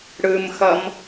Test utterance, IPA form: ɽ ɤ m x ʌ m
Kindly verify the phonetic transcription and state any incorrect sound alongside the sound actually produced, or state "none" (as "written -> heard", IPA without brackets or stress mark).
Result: ɤ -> ɯ